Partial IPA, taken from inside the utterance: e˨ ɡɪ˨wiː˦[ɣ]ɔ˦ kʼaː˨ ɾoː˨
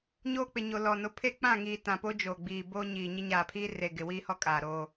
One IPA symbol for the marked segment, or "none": h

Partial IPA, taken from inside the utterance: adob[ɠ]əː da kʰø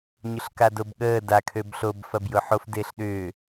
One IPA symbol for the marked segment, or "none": ɠ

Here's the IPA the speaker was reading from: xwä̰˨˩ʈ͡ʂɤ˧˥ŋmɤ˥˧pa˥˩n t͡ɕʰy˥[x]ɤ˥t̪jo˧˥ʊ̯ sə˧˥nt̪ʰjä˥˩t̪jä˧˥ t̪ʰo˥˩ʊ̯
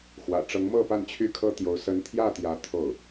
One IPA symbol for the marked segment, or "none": kʰ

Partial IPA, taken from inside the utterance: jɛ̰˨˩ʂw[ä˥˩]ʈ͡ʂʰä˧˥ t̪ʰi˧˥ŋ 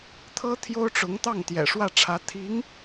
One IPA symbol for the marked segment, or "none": ä˥˩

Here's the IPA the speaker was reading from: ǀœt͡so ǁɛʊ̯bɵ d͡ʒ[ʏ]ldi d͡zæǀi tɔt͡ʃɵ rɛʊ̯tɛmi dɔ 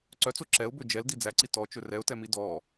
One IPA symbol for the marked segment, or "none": ɛ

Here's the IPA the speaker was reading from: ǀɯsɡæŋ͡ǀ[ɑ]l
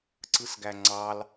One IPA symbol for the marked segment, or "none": ɑ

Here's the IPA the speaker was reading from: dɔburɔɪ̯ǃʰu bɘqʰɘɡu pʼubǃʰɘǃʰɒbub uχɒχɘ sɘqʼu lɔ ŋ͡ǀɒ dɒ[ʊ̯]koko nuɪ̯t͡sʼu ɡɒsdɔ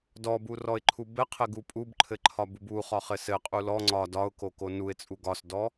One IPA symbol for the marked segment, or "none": ʊ̯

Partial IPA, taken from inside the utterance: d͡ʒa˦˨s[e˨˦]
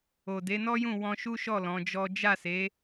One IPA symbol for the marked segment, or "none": e˨˦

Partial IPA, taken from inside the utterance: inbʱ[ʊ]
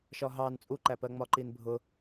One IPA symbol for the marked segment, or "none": ʊ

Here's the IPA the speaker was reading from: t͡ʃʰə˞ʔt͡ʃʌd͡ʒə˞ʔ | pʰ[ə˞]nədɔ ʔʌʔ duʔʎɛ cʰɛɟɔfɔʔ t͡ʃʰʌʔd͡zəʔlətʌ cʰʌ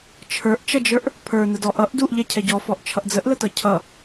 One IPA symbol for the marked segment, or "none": ə˞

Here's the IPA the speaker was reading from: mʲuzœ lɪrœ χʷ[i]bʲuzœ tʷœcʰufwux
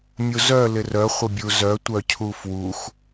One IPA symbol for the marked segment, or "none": ɪ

